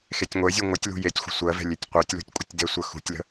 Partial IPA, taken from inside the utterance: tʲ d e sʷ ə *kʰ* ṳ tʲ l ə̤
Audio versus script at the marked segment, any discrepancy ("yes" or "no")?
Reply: yes